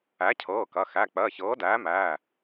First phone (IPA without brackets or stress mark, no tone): æ